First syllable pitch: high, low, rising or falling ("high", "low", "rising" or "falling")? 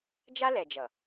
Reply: high